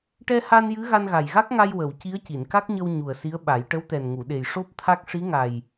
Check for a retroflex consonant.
present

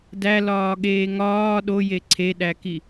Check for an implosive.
present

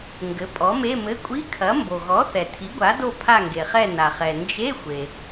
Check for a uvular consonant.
present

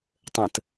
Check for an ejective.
absent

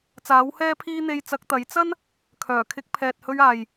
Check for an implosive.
absent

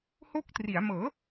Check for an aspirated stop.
absent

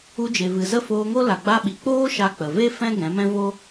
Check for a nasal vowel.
present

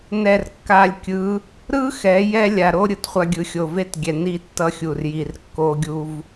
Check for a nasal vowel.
absent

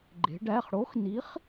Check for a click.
present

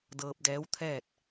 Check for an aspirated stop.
present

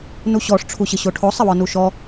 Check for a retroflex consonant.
present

